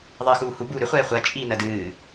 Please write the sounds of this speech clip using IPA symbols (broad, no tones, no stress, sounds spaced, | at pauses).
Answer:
ðˤ ɨː x uː h u b uː ɾ ʏ χʷ ɛː χʷ ɜ t͡ʃʼ iː n ɜ d ɨː